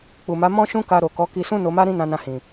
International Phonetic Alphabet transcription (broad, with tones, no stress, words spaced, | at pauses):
k͡pu˨ma˨˦ mɔ̃˦ʃũ˦ ka˧ɾo˨kɔ˨˦ ki˧sũ˦ no˧ma˦ɾĩ˦ nã˧nã˧hĩ˨